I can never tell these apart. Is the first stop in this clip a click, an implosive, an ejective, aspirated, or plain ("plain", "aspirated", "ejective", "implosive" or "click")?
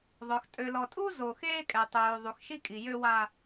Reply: ejective